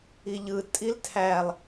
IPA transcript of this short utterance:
i ʎ ɯ tʼ i l tʰ æ lˠ

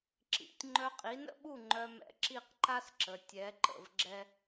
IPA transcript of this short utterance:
ǁ ḭ˩˥ tʲ ŋ͡ǃ œ˧ qʼ i˩˥ n ə̰˥ ɓ u˥˩ ŋ͡ǃ œ˧ m ɛ̰˧ ǁ i˥˩ q ǃ a˥ s ǁ ə˩ tʲ ɛ˩˥ ǃ ə̰˩ v ɡ͡ǁ ɛ˧

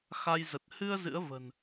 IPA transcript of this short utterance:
x a˧ j z ə˨˩ t̚ h ɨ˧ ə̯ z ɨ̰˧˥ ə̯ v ə̤˨˩ n

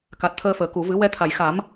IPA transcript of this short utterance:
k a˨˩ t̚ t̪ʰ əː˧ f əː˨˩˨ k u˨˩˨ v ɨ˨˩˦ w ɛ˧ t̪ʰ a˨˩˨ j x a˨˩˦ m

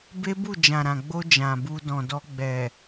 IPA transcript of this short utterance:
b e˦ b u˦˨ d͡ʒ ã˨ ɾ ã˨ ɡ͡b o˧ d͡ʒ ã˨ b u˧ d ɔ̃˨ d ɔ˧ ɡ͡b ɛ˨

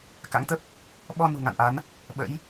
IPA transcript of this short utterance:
k a̰˧˥ ŋ t̪ ə˦˥ p̚ | ɓ ɔ˧ n ṳ˨˩ ŋ a̰˧˨ n ʔ a˨˦ n | ɓ ə̰˧˥ j

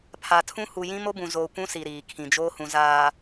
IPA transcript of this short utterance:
pʰ a˨ tʰ ũ˦ h u˨ j ĩ˦ m o˦ b ũ˨ z oː˨ kʷ ũ˦ s i˨ ɾ iː˨ kʰ ĩ˨ d͡ʒ oː˦ h ũ˨ z aː˨

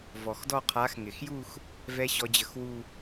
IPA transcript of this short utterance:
v ɔ˩ x d ɔ˥˧ qʰ a˨˦ x ŋ ɪ˩ x j u˥˧ x | v ɛ˦˥ ɕ ɔ˨˦ d͡ʑ ə˨˩˦ x w u˥˧

